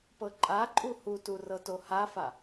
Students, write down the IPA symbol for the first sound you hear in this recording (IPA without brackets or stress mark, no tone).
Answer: p